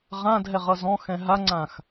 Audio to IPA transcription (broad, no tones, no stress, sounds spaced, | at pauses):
ʁ ã dʱ ɛ ʁ ʌ z ɔ̃ x ɛ̃ ɦ a ŋ͡ǀ ã x